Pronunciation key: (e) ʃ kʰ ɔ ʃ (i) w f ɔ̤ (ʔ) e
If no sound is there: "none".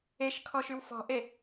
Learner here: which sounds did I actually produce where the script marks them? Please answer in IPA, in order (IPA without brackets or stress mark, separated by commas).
e, y, ʔ